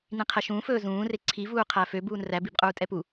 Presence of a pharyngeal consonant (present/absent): absent